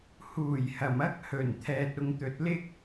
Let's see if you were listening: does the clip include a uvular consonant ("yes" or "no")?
no